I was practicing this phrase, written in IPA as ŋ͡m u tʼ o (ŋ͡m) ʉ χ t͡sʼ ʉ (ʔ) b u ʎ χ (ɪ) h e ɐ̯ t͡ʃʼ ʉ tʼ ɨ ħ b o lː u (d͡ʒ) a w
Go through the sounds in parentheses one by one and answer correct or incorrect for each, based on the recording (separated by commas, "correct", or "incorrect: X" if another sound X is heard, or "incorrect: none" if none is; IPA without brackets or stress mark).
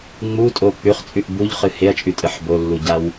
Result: incorrect: k͡p, correct, incorrect: ɨ, incorrect: ɟ